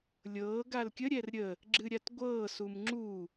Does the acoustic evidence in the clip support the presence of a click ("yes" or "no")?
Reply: yes